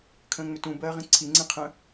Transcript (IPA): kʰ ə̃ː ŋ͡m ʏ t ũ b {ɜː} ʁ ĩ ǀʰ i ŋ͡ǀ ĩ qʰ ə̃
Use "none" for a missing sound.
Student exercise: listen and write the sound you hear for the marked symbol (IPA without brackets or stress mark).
ɜː